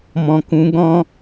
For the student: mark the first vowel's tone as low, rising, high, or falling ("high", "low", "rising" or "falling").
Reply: low